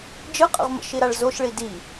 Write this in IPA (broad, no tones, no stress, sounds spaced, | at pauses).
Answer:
d͡ʒ ɯ qʼ ə̰ ʁ m ə̰ ʃ i ɾ a ɭ z o ʃ ɭ i d i